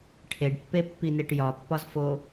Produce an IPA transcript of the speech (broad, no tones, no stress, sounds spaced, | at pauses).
ʈʰ e ɖ pː e pː i n e ʈ j ɒ pː ɒ z f o